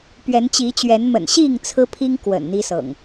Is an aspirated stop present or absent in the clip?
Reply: present